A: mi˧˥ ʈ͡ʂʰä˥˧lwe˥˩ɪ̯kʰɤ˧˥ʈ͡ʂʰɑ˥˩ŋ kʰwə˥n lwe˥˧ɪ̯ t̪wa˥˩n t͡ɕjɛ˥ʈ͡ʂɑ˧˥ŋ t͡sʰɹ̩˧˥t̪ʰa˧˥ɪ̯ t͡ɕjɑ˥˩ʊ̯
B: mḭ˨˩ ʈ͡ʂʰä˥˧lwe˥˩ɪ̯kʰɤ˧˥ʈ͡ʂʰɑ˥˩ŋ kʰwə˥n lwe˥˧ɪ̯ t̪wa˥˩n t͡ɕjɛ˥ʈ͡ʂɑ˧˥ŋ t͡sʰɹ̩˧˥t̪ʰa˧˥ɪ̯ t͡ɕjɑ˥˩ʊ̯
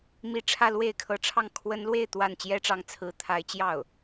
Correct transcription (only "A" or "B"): A